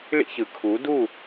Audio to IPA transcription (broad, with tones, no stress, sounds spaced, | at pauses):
ɭ ḭ˦ ç ɯ˨ kʰ u˨˦ d u˦˨